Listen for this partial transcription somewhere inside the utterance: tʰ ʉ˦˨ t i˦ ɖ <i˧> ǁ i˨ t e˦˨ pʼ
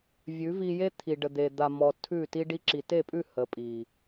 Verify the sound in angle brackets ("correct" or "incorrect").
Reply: correct